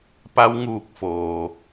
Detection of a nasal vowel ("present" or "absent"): absent